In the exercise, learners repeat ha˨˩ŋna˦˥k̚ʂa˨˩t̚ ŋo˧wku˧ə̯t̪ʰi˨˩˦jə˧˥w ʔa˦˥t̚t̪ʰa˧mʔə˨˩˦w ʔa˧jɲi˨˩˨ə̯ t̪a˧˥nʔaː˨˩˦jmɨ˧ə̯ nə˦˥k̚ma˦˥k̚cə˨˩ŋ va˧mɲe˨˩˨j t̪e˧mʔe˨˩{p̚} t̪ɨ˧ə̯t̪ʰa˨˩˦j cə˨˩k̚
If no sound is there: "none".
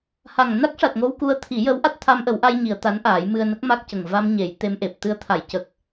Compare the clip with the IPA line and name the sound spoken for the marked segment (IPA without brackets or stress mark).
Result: p̚